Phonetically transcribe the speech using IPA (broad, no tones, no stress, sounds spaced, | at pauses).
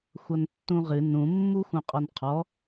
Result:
xʷ ʌ n tː ũ ʁ ɨ n ũ mː u x ũ qʼ ɔ n qʰ ɔ